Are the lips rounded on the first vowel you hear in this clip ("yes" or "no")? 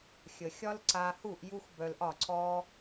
no